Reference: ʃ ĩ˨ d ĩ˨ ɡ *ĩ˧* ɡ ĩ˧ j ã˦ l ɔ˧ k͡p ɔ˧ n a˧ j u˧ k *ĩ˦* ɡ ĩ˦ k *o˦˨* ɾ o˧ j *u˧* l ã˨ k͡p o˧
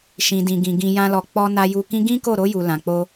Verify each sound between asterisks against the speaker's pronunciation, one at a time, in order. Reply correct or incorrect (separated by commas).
incorrect, correct, correct, incorrect